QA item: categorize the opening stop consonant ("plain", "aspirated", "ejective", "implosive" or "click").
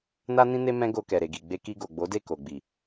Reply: plain